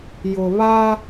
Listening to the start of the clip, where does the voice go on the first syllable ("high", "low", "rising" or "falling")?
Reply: low